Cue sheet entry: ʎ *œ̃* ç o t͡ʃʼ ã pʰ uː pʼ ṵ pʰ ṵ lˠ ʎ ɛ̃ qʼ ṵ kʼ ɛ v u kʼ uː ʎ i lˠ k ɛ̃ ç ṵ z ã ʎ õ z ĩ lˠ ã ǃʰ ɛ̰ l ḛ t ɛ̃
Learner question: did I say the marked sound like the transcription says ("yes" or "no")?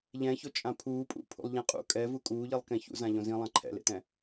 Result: no